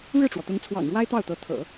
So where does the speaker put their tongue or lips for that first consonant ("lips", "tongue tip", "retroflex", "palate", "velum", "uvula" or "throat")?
retroflex